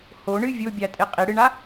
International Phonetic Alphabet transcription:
h o ɳ ɨ vʲ o bʲ a tʼ e qʼ i ɽ ɨ ɳ a

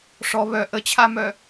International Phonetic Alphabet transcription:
ʂ ɔ β œ ʔ ə t͡ɕʰ a m œ

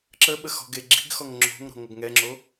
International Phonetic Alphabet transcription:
ǁ ə ɓ ə x ɔ̤ ɡ e ɡ͡ǁ i̤ ɡ x ɔ ŋ ŋ͡ǁ o̤ ŋ ɾ ɔ̤ ŋ ʌ ɡ ŋ ɛ ŋ͡ǁ o

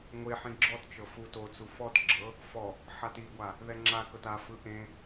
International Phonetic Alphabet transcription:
ŋʷ e ħ ĩ ɡ͡ǁ ɔ t t͡ʃ ɤ f u t o t͡s u f ɔ t ɡ͡ǁ ɤ | f ɔ | ħ a t i ɡʷ a | ð ɛ ŋ͡ǁ a k ɤ t a f ɯ ʔ ẽ

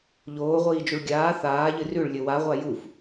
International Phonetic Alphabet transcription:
ʎ oː ʁʷ iː d͡ʒ u ɭ ɡʲ aː θ aː ʎ ɨ r ʉ ɭ lʲ ɵ w a ʁʷ a j u f

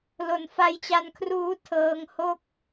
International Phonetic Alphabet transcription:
l o˨˩ n f a˦˥ j t͡ɕ a˧ n kʰ r uː˦˥ tʰ ɤː˧ ŋ h o˥˩ k̚

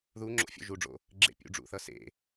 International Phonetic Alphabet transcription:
ð u ŋ͡ǁ o̰ fʲ o̰ ʒ u ɖ͡ʐ o̰ | ɡ͡ǁ ḛ pʲ ṵ ɖ͡ʐ ṵ θ ʌ s ḛ

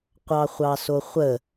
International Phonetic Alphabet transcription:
qʷ ɑ χʷ ɑ s o χʷ ə

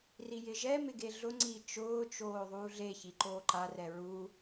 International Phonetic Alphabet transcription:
r i j ɪ ʒ ɛ m ɪ ɡ e ɮ ʊ ŋ͡ǀ i t͡ʃ ʊː t͡ʃ oː ðˤ uː ɮ e ç i ǃ oː ǃ a r ɛ ɹ u

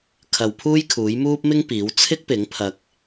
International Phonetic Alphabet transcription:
kʰ ɐ˨ w pʰ uː˥ j kʰ uː˨˥ j m uː˥ p̚ m ɪ˥ ŋ p iː˨˥ w t͡sʰ ɪ˥ k̚ p ɪ˨˥ ŋ pʰ ɐ˧ k̚

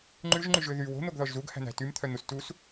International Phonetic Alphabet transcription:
ŋ͡ǃ ʉ ʒ ŋ͡ǃ y ʒ ø ð y w o̤ n̪ o ɡ ð ɔ ʒ z u ɡ h æ̤ n̪ æ̤ t y m t̪ʰ œ n̪ u s t u s

